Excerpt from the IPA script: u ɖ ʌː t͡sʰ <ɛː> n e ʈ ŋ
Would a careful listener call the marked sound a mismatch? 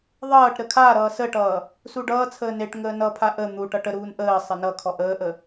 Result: yes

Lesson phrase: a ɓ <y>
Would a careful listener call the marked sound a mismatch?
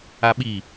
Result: yes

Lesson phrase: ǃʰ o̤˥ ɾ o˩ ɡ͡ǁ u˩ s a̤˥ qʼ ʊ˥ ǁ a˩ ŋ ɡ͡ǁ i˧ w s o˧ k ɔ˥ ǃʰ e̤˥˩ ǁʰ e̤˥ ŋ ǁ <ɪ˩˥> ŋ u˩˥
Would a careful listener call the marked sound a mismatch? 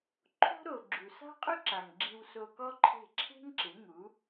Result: no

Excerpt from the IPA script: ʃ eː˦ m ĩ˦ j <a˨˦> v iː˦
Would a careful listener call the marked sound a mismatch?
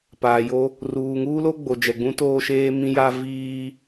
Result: yes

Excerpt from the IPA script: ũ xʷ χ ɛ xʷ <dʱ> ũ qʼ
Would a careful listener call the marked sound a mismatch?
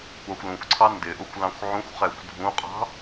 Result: no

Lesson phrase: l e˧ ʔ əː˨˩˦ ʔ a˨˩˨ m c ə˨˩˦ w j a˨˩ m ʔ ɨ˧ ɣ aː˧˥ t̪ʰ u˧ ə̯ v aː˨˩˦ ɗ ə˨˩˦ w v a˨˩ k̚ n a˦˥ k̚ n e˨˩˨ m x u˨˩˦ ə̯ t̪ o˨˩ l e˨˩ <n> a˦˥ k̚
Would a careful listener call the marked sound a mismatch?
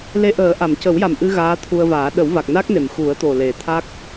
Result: yes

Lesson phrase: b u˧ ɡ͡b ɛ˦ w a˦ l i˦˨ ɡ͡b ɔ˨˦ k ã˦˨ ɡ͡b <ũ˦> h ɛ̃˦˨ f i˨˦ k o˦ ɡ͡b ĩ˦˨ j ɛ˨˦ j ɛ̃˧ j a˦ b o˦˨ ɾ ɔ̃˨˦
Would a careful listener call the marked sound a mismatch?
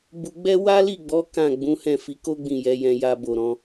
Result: yes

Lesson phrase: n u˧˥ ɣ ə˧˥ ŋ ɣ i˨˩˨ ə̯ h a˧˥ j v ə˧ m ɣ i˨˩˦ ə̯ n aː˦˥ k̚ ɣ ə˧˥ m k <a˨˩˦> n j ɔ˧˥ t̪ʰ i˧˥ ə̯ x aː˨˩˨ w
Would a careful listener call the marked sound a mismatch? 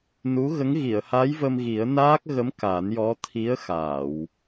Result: no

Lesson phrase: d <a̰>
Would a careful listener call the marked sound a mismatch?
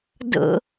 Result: yes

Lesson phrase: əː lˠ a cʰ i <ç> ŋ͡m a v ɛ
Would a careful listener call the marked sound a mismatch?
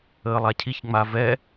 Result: no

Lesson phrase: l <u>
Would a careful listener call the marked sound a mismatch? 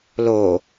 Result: yes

